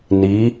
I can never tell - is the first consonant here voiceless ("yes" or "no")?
no